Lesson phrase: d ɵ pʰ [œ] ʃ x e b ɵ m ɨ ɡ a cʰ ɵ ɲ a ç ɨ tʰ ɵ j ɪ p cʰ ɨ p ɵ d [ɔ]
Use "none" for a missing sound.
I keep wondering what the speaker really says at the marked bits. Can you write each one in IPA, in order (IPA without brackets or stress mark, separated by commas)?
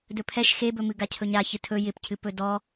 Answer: ɛ, ɔ